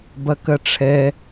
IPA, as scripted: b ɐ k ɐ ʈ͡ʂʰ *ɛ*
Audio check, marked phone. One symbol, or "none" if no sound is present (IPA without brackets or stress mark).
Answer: ɛ